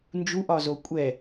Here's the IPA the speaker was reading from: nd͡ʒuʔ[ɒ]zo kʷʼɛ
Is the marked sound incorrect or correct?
correct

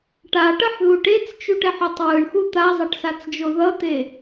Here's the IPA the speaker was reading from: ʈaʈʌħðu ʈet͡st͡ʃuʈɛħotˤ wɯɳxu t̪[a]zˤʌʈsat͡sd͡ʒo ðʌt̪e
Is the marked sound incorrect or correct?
correct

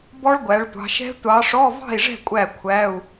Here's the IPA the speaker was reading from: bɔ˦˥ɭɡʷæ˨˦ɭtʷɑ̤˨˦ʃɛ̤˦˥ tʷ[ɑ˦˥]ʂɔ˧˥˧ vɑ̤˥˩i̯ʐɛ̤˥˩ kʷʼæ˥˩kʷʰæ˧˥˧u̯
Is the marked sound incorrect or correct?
incorrect: ɑ˨˦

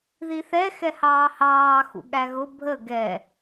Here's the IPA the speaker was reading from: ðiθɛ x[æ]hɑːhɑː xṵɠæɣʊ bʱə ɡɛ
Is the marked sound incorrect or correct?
incorrect: ɛ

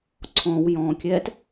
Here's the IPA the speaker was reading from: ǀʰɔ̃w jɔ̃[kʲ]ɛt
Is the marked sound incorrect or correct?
correct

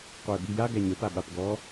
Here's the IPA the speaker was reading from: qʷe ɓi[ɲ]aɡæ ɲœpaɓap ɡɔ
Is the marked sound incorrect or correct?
incorrect: j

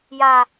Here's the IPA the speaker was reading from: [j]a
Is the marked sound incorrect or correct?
correct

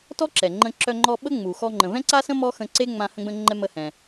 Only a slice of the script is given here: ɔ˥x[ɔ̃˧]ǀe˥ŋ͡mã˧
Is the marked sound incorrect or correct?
incorrect: ə̃˧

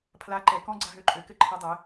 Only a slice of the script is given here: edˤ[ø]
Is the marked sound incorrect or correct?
incorrect: ɘ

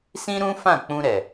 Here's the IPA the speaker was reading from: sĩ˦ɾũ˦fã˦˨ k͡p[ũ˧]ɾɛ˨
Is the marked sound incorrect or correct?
correct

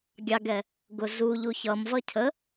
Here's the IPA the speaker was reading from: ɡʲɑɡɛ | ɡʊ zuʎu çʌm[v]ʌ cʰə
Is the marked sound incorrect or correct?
correct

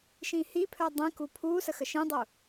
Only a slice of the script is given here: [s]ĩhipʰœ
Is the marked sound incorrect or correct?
incorrect: ʃ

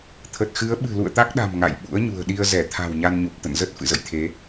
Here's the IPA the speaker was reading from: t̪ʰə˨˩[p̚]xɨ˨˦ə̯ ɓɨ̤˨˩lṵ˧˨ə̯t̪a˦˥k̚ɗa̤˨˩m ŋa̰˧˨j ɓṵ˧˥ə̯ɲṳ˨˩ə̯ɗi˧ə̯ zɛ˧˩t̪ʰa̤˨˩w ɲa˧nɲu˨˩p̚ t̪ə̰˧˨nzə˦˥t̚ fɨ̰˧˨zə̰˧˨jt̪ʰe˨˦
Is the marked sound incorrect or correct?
incorrect: t̚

